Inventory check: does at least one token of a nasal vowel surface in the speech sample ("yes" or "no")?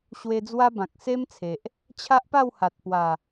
yes